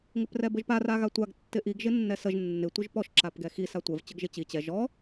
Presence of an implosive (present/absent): absent